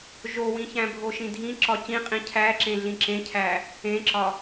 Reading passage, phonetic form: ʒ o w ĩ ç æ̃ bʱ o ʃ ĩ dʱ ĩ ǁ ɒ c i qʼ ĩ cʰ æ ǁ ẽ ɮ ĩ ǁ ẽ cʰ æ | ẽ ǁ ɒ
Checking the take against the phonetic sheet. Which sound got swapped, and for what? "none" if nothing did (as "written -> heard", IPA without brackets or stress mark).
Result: i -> ĩ